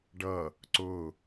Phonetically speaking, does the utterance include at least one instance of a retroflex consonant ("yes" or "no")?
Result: yes